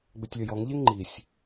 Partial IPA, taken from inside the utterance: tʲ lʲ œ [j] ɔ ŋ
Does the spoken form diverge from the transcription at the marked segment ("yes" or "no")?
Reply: no